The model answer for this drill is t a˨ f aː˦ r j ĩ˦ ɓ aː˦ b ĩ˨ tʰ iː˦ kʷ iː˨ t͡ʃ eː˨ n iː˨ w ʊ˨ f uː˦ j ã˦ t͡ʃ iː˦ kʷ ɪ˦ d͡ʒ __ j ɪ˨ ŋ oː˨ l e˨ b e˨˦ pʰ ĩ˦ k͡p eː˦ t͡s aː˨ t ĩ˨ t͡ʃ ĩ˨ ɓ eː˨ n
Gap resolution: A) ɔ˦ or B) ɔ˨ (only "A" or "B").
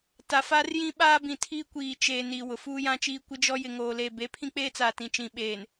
A